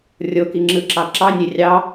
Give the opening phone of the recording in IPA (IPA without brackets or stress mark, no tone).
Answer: rʲ